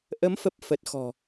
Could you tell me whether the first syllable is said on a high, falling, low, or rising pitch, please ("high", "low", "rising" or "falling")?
rising